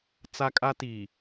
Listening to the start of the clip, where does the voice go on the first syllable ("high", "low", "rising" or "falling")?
high